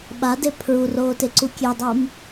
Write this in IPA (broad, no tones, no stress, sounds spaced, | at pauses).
ɓ a d e pʰ ɹ u r oː t e ǀ u kʲ e dˤ o m